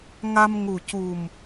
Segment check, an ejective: absent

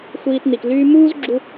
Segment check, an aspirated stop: absent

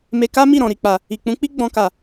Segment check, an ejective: absent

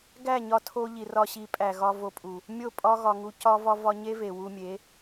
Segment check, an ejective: present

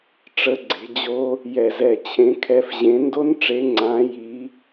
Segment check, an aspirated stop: present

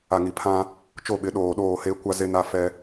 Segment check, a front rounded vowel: absent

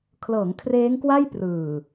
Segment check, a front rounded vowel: absent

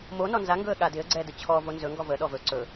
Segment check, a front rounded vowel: absent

